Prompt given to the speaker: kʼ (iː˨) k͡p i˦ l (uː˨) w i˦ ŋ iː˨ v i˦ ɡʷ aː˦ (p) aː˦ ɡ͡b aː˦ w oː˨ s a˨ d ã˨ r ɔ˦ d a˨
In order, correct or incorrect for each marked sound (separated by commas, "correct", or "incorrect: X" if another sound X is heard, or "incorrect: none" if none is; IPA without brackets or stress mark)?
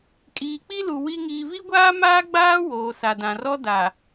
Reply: correct, incorrect: u˨, incorrect: m